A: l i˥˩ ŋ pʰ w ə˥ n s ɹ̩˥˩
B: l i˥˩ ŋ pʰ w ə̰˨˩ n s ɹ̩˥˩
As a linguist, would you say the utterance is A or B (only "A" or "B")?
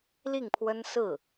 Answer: A